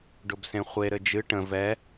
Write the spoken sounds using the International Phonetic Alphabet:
ɖ ʊ b s ẽ χʷ e ɾ ɘ d͡ʒ ɨ ʈ ə̃ v ɛ

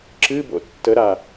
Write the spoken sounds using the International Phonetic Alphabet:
ǁ ɨ b o̰ tː ə ɾ a

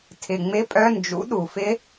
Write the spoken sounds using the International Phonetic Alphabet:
tʰ ɪ˨˩ ŋ͡m ɪ˧˥˧ pʼ œ˧˥˧ n d͡ʒ ṵ˨˥ ɗ u˨˩ f ɪ˦˥

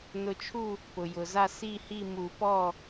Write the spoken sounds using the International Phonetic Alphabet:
n ʊ˨˦ t͡ʃʰ u˥˨ | p ʊ˩ j ʊ˩ z a˥˨ s i˥˨ h i˥˨ m u˨˩˦ p ɔ˥˨

